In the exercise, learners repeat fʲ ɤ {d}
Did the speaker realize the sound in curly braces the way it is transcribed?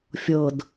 yes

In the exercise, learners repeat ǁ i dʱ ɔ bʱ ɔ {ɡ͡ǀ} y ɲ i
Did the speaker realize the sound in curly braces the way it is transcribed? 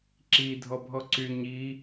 no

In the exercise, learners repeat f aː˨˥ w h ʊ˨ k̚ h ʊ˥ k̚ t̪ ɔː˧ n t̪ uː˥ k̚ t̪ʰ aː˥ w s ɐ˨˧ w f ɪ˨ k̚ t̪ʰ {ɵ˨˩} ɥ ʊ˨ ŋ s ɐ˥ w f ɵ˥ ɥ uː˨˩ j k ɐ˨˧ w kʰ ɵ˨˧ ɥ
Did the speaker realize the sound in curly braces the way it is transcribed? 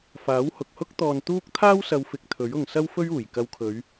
no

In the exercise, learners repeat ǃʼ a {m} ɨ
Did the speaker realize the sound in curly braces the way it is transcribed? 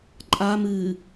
yes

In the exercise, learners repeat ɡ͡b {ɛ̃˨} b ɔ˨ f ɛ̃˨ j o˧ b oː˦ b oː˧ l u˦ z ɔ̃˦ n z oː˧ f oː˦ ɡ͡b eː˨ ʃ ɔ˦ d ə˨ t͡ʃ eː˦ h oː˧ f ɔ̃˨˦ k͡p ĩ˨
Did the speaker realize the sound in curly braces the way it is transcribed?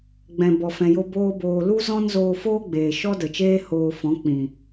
yes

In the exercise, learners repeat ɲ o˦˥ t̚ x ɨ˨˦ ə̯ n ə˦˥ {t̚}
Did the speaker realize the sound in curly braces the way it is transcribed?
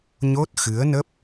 no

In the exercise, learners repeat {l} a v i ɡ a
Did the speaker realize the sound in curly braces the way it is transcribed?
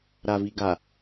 no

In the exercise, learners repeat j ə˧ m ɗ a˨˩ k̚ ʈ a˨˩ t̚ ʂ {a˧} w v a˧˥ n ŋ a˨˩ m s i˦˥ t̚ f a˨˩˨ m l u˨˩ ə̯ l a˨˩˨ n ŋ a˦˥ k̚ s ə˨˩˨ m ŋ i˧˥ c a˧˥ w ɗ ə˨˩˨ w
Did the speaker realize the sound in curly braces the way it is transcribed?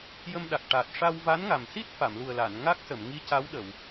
yes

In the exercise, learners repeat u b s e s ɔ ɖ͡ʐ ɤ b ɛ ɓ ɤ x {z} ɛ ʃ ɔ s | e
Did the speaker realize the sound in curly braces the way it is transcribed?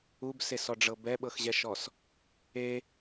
no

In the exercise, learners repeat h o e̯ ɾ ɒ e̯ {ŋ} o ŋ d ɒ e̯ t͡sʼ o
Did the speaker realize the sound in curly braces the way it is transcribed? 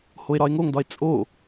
yes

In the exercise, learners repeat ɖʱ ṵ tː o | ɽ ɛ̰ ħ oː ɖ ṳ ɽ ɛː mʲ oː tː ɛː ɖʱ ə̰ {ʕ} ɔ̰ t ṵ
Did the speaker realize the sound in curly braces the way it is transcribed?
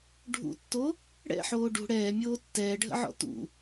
yes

